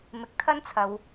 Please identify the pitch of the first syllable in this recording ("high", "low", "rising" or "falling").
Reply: rising